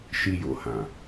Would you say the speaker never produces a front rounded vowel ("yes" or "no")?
yes